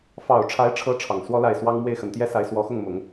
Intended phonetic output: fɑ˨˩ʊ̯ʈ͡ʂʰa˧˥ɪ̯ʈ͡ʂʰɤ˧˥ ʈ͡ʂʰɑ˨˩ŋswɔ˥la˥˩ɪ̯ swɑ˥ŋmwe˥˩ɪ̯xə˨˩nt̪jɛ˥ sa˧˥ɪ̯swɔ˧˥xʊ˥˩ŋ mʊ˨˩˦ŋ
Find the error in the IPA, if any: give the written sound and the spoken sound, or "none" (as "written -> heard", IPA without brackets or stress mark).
none